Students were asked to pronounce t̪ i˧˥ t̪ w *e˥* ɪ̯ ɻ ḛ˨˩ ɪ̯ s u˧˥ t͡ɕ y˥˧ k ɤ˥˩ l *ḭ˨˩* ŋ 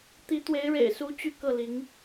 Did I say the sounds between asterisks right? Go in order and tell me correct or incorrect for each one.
incorrect, incorrect

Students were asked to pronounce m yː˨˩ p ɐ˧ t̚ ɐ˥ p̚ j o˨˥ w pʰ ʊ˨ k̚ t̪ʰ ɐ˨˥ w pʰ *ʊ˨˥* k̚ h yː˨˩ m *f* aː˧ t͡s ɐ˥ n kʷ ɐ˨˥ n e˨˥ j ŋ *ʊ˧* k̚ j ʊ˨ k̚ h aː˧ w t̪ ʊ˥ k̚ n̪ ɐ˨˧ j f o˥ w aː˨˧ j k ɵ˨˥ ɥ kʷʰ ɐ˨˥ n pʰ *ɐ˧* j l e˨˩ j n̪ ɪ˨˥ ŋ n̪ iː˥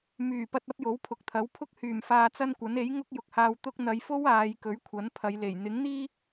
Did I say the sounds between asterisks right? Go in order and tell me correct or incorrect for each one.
incorrect, correct, incorrect, incorrect

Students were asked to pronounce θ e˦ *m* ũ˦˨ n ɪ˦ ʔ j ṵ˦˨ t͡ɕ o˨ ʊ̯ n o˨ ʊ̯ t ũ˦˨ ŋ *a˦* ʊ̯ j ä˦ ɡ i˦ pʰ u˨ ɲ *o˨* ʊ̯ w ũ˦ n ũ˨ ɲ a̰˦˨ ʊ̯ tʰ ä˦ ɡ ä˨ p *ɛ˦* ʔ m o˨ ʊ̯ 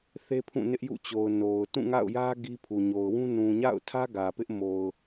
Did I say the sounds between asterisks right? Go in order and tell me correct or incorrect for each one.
incorrect, incorrect, correct, incorrect

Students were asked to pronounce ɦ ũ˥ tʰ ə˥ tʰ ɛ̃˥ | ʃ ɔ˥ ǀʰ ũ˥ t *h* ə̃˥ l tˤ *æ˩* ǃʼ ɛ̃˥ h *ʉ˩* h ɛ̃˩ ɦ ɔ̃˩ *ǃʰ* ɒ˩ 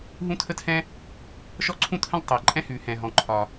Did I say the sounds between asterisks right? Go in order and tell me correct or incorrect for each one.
correct, correct, correct, correct

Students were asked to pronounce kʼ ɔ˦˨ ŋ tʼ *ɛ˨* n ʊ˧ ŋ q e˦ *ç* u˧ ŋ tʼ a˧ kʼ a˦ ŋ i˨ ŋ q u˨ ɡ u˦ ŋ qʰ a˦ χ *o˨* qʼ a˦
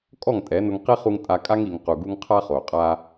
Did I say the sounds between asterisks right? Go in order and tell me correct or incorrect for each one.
incorrect, incorrect, correct

